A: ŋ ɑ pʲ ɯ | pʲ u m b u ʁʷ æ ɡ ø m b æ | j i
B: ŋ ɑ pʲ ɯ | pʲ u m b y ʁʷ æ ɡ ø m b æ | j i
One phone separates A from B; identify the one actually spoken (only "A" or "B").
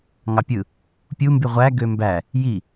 B